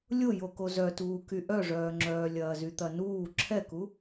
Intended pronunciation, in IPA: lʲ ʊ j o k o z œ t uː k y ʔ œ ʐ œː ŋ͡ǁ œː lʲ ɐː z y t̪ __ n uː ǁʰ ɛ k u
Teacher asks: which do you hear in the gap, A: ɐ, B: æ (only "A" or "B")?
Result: A